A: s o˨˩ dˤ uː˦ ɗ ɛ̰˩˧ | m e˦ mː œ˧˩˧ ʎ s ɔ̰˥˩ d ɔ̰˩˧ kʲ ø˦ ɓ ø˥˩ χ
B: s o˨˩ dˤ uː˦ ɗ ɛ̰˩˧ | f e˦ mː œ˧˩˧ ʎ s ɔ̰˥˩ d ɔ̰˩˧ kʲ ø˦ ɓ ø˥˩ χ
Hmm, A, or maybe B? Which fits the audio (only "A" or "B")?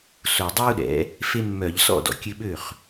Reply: B